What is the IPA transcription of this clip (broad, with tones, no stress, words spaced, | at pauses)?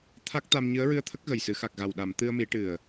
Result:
t̪ʰa˦˥k̚ t̪a˧m ɲɨ˧˥ə̯ɹɨ˧ə̯t̪ʰə˦˥k̚ ɣə˨˩jsɨ˨˩˦xa˨˩k̚ɣa˨˩w ɗa˨˩˨m t̪ɨ˧ə̯mi˨˩˦ʈɨ˨˩ə̯